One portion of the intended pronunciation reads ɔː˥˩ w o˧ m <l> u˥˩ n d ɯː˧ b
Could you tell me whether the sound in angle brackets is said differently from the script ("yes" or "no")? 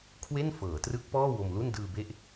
no